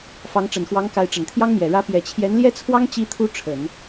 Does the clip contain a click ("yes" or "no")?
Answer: no